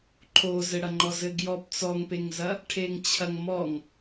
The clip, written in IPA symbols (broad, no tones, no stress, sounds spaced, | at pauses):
ǃʰ o z ɘ ɽ ɐ ŋ͡ǃ ɔ z ɘ ɡ j ɔ p t͡s ɔ ŋ p e ŋ z ɐ | ʈʰ e ŋ t͡ɕʰ ɐ ŋ m ɔ ŋ